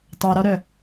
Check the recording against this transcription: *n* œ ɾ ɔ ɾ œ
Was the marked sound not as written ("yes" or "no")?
yes